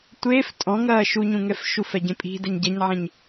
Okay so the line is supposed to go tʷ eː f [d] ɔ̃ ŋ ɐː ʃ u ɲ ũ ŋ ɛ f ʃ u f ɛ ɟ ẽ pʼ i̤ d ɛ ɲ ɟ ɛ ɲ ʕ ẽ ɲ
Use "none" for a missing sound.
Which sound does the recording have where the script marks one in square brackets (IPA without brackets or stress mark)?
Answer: tʼ